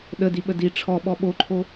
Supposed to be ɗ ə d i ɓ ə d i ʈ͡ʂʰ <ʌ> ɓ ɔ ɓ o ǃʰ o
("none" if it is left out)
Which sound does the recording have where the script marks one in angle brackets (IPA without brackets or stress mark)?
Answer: ɔ